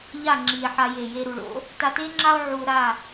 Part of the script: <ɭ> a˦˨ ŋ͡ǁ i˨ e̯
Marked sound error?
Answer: yes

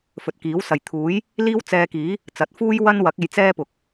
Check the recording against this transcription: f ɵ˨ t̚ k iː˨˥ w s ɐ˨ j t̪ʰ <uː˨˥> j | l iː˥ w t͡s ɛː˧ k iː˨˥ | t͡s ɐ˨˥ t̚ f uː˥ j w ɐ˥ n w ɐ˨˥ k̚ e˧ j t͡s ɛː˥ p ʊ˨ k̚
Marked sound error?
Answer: no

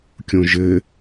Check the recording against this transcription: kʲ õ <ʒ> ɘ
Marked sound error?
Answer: no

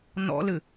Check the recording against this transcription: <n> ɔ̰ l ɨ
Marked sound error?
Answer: no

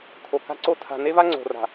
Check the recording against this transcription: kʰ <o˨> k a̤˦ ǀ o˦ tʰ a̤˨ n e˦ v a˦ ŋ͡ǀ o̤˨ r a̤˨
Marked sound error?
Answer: no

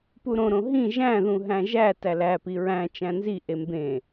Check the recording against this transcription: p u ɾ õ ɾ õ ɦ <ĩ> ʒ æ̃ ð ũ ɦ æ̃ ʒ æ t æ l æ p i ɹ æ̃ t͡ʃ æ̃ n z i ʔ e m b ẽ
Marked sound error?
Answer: no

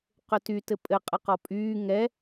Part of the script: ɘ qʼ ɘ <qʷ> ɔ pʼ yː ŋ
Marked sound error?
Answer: yes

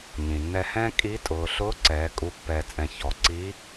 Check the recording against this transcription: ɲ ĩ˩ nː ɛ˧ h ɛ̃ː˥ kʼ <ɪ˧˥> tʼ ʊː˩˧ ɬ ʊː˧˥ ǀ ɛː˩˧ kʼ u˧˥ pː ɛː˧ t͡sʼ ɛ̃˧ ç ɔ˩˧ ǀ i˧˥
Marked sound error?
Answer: yes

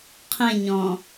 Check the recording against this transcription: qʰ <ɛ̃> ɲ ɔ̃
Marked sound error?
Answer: yes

